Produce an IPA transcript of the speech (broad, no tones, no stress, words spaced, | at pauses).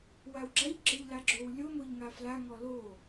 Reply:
wawɡ͡ǁaʎɡ͡ǁɤʎ laɡ͡ǁowlʲo moʎŋafla ŋɔlo